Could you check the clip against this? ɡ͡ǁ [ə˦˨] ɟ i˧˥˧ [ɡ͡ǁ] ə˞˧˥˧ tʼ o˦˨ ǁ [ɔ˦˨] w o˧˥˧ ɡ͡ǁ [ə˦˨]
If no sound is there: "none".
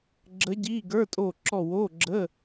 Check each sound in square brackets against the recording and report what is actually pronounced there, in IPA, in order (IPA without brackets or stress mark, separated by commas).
ə˧˥, ɡ, ɔ˦˨, ə˧˥˧